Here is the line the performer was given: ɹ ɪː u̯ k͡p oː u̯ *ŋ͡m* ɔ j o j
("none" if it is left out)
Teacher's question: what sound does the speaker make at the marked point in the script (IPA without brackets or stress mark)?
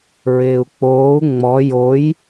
ŋ͡m